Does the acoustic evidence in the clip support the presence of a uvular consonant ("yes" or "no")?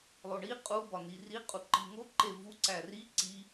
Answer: yes